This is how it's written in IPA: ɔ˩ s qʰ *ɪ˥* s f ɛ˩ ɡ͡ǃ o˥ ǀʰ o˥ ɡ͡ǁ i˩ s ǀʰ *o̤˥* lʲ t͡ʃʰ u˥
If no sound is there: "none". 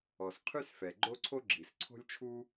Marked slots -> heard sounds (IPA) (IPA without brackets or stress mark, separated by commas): y˥, o̤˥